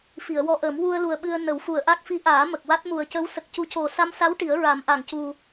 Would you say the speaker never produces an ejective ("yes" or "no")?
yes